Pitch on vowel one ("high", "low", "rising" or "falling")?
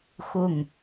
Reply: falling